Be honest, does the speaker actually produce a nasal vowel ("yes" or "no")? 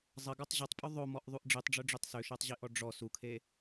no